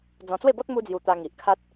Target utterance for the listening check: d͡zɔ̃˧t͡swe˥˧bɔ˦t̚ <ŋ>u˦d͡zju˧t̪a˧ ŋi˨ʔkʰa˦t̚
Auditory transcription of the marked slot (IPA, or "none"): m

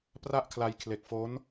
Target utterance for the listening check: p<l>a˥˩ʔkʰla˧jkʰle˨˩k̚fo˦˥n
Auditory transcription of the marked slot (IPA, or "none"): r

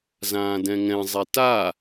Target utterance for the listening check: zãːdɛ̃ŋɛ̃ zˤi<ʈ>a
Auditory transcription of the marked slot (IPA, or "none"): t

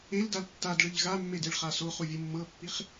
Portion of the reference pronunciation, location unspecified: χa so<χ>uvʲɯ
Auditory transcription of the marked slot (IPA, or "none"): χ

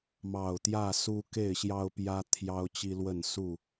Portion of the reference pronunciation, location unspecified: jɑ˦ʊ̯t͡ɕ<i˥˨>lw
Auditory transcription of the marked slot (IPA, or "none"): i˦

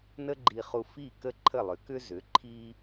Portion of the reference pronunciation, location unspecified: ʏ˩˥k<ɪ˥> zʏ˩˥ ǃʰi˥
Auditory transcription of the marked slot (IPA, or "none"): ʏ˥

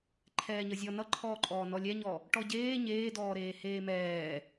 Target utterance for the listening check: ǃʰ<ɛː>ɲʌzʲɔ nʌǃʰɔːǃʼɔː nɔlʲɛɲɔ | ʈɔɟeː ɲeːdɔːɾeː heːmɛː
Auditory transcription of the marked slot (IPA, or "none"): ɛː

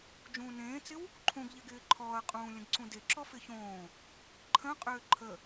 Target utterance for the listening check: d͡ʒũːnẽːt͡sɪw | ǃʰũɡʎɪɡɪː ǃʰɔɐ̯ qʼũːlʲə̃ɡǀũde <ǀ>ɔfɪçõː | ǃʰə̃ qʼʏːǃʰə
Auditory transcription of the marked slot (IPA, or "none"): ǁ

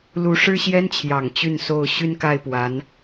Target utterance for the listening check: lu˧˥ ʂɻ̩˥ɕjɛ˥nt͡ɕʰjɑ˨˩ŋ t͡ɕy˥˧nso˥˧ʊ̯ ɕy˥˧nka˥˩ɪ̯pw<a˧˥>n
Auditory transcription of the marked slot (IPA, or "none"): a˧˥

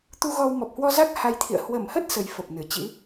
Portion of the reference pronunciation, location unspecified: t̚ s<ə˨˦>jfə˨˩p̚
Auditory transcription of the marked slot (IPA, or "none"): ə˨˦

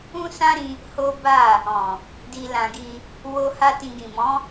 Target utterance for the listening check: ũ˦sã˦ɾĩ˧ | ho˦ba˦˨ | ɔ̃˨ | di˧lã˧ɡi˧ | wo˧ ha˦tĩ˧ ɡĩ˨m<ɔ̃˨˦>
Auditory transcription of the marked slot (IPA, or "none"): ɔ̃˨˦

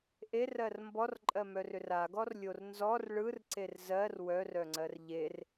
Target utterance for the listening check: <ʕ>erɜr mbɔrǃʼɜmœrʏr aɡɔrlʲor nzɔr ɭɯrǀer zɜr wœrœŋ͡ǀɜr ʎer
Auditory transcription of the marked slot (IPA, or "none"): ʔ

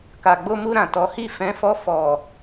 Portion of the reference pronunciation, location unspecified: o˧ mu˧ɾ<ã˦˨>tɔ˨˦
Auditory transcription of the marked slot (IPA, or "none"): ã˨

